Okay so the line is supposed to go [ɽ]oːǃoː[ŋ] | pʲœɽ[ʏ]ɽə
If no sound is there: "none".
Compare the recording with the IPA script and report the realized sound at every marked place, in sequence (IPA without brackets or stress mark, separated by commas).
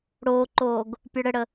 ɽ, ɡ, ə